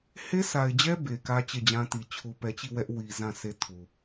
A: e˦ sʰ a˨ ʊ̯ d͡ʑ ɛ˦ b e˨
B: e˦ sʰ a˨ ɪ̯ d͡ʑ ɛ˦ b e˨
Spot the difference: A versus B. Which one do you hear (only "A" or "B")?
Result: B